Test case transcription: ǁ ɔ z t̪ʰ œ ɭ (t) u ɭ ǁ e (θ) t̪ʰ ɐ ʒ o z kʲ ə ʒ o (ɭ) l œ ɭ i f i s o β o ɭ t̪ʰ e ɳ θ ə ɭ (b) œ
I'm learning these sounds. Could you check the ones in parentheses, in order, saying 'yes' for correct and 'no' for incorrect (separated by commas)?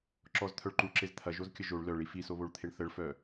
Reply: no, no, yes, no